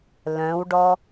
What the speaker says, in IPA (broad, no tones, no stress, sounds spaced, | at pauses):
l œ̃ w ɖ ɔ